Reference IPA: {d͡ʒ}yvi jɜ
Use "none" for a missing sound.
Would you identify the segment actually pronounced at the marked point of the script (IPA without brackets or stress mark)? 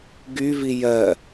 ɡ